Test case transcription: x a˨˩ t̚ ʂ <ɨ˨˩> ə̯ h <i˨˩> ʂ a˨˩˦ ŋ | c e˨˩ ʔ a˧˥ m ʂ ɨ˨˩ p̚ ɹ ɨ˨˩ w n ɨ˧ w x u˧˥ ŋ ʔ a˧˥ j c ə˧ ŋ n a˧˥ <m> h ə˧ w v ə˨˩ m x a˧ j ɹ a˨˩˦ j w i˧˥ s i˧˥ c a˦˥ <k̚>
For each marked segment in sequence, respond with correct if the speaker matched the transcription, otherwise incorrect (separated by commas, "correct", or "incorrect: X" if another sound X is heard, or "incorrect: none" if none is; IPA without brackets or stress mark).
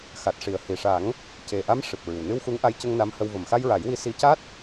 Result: incorrect: i˨˩, correct, correct, incorrect: t̚